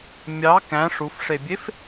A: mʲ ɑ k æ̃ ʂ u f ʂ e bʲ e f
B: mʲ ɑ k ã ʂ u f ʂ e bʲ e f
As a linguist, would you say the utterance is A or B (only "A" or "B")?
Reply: A